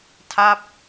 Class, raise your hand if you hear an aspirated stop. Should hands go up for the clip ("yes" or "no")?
yes